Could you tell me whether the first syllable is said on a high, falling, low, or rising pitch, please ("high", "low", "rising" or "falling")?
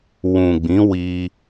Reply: low